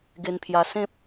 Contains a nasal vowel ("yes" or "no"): yes